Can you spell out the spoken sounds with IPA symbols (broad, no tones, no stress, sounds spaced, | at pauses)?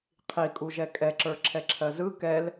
qʰ i kʼ u ʒ ɛ kʼ ɛ ǁ ə˞ ǁʰ ɛ ǁʰ ɜ z ɯ k ɛ l